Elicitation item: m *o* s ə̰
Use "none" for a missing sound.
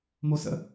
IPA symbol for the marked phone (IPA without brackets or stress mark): o